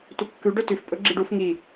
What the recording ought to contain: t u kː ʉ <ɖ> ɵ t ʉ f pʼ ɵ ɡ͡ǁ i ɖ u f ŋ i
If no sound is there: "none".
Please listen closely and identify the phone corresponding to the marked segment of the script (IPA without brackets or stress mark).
ɖ